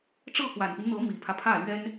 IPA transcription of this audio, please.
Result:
ʈ͡ʂ ɤ˥˩ k w a˨˩ n p i˦ n n̪ ɤ˧˥ m i˨˩ pʰ ä˦ pʰ ä˥˩ l ɥ ɛ˥ n

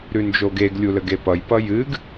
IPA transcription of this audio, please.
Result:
ɾ ʉ n d͡ʒ o ɡ e ɡ lʲ u l ə ɡ e p ʌ j p ʌ j ɨ ɡ

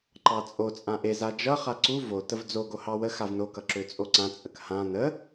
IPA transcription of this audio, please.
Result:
ǃ ɑ t͡sʼ o t͡sʼ ã ʔ e z a d͡ʒ ʌ χ a ǀ u v o t ə v d͡z o ɡ o h ɑ w ə x a v n o k ʌ ǁ ø t͡sʼ o ǀ ã t͡sʼ ə k h ã n ə

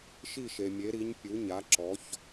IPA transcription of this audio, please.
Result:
ʃ i˥˩ ʃ e˩ mʲ e˩˥ ɾ i˩˥ ɲ pʲ u˩˥ ɲ a˩˥ ǁ ɔ˩˥ ç

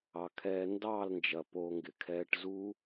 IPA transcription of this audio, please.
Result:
ɑ˨ kʰ ɛː˧ n d ɑː˦˨ l n d͡ʒ ɐ˨ p oː˧ ŋ ɡ ɪ˨ kʰ ɛː˦ ʈ z u˦

